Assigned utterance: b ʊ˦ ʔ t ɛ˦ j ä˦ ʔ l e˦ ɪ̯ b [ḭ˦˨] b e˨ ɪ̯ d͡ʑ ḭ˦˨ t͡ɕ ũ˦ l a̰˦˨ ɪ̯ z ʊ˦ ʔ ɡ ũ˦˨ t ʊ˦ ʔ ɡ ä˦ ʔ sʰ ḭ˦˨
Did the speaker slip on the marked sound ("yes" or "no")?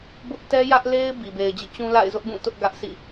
yes